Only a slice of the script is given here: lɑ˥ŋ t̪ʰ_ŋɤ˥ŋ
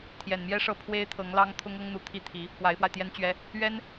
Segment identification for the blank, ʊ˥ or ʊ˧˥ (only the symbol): ʊ˥